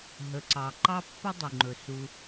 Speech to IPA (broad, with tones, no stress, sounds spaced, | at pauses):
ɦ ə˩ ǀ ɑ˩ ǃ ɑ˦ pː ə˦ dˤ u˩ ŋ͡ǃ ɵ˩ s u˨